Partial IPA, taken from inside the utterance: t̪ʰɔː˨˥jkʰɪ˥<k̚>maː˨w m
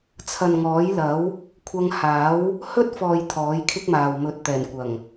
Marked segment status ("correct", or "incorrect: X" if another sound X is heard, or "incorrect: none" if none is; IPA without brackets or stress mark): correct